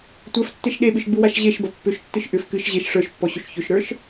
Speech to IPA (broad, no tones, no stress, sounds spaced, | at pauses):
tʷ ə˞ f tː e ʃ ɗ e ɓ ɨ ʃ ɡ͡b u w a ʃ ʑ e ʃ b ɐ pː ʏ ʃ tː ɨ ʃ ʔ ʏ f k ɨ ʃ ʑ e ʃ ʂ ə˞ ʃ pː ɔ ɕ ʏ ʃ ç ʏ ʃ ɾ ə˞ ʃ